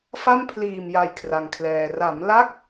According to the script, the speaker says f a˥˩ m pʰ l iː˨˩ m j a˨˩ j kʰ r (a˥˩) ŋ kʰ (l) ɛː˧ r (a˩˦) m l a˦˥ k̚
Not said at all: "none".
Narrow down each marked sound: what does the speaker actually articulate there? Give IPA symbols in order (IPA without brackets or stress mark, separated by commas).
a˧, l, a˩˦